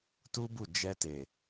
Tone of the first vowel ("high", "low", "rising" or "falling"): high